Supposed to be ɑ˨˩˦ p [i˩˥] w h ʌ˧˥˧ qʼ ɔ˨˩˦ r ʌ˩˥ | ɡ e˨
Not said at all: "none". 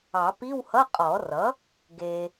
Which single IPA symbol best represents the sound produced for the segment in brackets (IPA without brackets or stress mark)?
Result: i˧˥˧